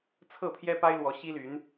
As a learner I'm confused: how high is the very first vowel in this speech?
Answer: mid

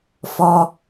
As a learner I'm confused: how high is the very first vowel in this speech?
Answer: mid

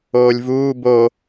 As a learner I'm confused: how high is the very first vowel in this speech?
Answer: mid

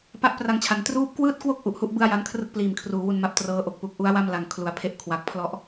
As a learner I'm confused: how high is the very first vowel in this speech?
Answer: low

